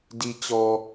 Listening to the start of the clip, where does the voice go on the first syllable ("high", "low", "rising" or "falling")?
low